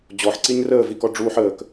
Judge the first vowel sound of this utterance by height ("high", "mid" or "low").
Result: mid